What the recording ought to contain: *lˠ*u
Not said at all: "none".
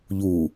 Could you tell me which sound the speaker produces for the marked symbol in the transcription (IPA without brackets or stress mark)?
ʎ